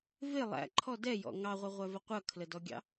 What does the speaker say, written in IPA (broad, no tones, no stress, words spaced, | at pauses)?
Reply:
vɪ lˠæ̰ǃʰɔ dɛjɔ̰ ŋɑʁʷəʁʷævə qʷʌkʰlədɔɡʲɑ̰